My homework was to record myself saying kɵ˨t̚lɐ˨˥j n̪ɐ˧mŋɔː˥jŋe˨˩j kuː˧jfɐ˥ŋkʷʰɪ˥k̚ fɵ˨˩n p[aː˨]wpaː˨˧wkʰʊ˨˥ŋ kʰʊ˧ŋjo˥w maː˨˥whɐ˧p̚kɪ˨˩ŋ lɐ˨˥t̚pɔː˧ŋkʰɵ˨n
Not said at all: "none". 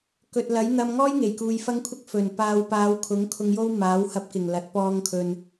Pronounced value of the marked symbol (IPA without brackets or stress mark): aː˨